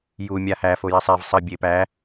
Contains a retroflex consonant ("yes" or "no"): no